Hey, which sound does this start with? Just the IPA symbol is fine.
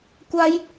kʷ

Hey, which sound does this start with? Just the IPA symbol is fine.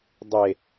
dˤ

